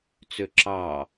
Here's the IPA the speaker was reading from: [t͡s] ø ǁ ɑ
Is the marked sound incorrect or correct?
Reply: correct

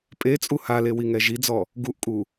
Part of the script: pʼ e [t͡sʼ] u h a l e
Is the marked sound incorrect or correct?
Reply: correct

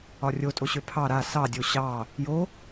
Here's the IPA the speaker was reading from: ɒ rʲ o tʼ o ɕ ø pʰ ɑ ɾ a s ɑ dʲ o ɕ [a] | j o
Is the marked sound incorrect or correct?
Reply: incorrect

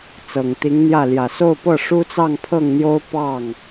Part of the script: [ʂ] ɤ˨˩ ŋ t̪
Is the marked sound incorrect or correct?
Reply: incorrect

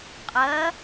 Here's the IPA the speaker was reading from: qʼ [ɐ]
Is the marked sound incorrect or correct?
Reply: correct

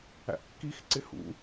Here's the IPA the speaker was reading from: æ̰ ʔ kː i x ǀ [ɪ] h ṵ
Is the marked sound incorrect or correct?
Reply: correct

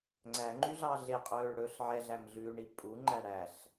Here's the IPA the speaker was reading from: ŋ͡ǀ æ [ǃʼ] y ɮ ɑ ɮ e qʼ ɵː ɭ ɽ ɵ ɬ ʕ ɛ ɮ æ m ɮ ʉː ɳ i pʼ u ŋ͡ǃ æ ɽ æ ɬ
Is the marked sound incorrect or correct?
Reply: incorrect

